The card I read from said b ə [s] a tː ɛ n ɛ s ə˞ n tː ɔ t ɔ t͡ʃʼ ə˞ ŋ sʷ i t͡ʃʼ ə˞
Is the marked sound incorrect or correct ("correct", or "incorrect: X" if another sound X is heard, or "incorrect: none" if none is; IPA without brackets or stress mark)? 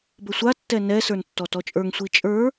incorrect: sʷ